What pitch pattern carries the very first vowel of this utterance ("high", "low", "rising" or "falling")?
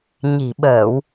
low